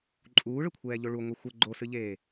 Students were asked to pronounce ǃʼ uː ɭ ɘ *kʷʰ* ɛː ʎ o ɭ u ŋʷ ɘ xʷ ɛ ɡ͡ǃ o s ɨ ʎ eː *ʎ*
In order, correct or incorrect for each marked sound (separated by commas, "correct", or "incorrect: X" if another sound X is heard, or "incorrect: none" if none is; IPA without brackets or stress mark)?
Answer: correct, incorrect: none